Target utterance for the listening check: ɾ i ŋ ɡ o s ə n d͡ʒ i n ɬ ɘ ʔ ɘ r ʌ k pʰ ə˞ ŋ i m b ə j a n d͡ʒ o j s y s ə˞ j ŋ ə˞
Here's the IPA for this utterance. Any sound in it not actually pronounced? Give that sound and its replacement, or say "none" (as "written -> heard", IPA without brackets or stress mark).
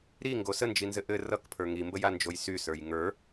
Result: ɬ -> z